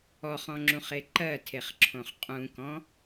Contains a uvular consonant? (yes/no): yes